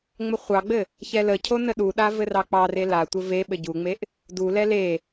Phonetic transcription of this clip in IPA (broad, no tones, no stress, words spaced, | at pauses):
ŋ͡məχʷɑɡ͡bɘ | çɛləcʰo nəɗuɗa vɘrɑk͡pɑre latʷɘ ve ɓɘɟuŋ͡meʔ | dulɛ le